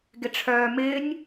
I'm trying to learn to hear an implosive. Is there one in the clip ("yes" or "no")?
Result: no